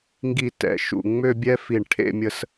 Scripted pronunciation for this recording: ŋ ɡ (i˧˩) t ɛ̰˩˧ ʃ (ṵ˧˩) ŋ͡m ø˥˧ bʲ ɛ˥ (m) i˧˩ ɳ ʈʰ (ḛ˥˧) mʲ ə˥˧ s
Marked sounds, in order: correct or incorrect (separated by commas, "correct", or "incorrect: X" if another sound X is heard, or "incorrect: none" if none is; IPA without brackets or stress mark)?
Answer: correct, correct, incorrect: f, correct